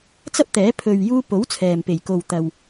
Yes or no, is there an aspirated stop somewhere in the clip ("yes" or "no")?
yes